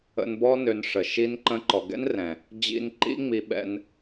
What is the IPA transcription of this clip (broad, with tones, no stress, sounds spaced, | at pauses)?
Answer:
ə̰˧ n b ɔ˦ n ø˧ n ʂ ə˨ ʃ i˦ n ǃ ə̃˧ ǃ ɔ˨ ɡ ɛ̰˦ n r ɛ̃˨ | d͡ʑ ḭ˧ n ǃ ḭ˦ ŋ͡m i˧ ɓ ɛ̰˧ n